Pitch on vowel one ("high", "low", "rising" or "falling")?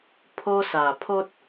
high